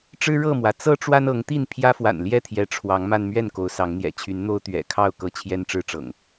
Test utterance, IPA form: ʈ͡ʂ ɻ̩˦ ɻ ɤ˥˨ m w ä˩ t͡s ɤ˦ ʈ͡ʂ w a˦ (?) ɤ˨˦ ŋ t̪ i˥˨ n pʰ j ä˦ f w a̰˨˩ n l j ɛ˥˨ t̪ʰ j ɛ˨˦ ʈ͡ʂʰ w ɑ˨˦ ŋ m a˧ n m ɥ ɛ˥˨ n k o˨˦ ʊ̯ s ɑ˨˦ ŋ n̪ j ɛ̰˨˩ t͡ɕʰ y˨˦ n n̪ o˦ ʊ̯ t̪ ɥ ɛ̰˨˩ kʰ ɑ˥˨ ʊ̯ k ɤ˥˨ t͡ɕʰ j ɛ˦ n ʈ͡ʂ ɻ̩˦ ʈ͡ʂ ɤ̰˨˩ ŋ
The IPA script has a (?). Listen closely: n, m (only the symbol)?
n